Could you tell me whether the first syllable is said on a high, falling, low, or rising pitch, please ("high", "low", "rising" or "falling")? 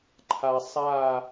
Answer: low